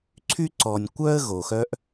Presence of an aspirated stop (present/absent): present